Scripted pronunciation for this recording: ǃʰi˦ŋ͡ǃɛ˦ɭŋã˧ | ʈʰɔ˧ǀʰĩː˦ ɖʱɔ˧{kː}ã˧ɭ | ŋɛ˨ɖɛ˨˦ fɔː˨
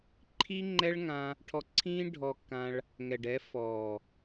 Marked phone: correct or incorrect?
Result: correct